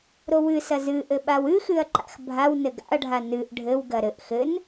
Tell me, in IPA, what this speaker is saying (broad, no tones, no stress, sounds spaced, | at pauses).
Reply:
ɾ o w ɨ s ɐ z ɨ ʔ ɘ ɓ a w ɨ x ɨ ɐ̯ ǃ a̰ x bʱ a w n ɘ ɡ a̰ ɐ̯ ɖʱ a n ɨ ʔ ɖʱ ɘ w ɡ ɐ ɾ ɘ ʔ x ɘ n